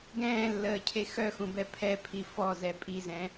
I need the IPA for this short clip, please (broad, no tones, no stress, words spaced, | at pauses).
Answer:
ɡɛ̃ːlːəːcʰe xœxũbɛ pʰɛpʰi fɔzɛ pʼizɛ̃